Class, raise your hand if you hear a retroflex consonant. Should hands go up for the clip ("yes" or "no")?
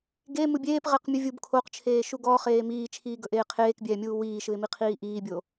no